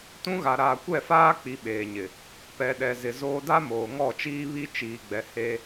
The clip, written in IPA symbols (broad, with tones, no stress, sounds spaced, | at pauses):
t ũ˦ ɣ a˨ ɾ aː˨ kʷ ɛ˦˨ f aː˦ k͡p i˨ ɓ eː˨ ɲ ɪ˨ | p ɛ˨ ɗ ɛ˨ z ɪ˨ z oː˦ d a˦ m oː˨ ŋ ɔ˦˨ t͡ʃ iː˦ β i˦ t͡ʃ iː˨ ɡ͡b ɛ˨ h e˦